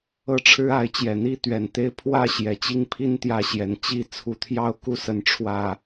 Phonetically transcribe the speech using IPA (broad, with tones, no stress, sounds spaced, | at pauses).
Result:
ɤ˥˨ ʈ͡ʂʰ ɻ̩˦ a˨˦ ɪ̯ t͡ɕ j ɛ˨˩ n̪ i˦ t̪ ɥ ɛ˨˩ n t̪ e˦ ɪ̯ pʰ w ä˥˨ ɕ j ɛ˨˩ t͡ɕ i˥˨ ŋ pʰ i˦ n t̪ j ä˥˨ ɕ j ɛ˨˦ n t͡ɕ i˥˨ t͡sʰ u˨˦ t̪ʰ j ɑ˥˨ ʊ̯ k u˥˨ s ə˥˨ n ʈ͡ʂʰ w ä˨˩